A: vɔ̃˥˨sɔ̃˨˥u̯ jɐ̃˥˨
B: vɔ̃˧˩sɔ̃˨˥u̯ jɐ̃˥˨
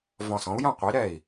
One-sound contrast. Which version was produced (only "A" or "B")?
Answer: B